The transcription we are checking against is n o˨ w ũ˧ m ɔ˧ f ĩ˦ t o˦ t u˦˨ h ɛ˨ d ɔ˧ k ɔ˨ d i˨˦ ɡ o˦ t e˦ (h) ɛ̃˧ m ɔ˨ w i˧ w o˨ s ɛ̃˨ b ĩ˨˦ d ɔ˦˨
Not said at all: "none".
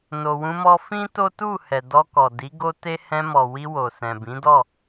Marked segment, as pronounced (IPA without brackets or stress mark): h